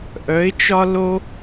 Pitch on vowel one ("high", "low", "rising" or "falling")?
rising